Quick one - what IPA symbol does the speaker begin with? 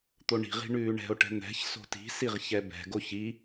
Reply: t̪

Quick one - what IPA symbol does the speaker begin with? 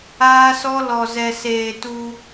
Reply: aː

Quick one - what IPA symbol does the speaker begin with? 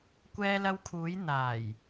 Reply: kʷ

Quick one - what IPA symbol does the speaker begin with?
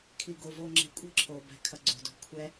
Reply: kʰ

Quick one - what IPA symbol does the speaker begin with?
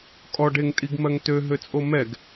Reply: kʼ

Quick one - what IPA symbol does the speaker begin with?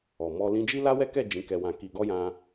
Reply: ɔ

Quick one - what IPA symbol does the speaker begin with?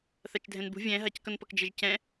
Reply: θ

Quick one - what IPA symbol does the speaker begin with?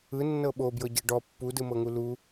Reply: ɯ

